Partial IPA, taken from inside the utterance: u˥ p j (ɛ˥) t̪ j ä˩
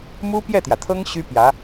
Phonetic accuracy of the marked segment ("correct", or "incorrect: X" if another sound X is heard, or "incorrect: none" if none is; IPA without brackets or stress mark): incorrect: ɛ˥˩